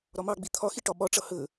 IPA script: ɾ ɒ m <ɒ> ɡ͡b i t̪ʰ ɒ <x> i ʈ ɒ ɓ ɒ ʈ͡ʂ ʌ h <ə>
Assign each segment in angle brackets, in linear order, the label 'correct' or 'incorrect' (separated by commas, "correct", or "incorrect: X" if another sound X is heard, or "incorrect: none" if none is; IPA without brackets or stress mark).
incorrect: ɑ, correct, correct